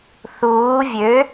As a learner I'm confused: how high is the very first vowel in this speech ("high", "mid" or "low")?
high